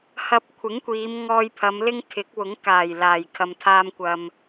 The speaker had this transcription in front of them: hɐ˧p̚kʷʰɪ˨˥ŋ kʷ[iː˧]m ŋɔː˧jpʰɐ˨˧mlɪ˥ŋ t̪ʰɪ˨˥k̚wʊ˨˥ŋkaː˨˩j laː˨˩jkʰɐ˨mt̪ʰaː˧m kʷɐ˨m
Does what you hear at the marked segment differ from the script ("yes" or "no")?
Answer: yes